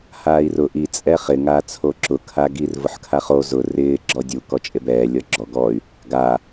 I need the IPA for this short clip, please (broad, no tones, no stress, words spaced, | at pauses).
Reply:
haːi̯rʊ ʔi t͡sʼɛχɪ ŋat͡sʰoǁʊ kʰaɡir vʊħkʰaχo zʊ rɪː ɡ͡ǁɔdʲu kɔt͡ʃʼebɛː lʲɔɡ͡ǁɔ ɡɔy̯ | ɡa